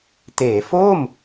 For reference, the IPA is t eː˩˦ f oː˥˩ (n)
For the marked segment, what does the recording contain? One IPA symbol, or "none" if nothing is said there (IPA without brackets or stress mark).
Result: m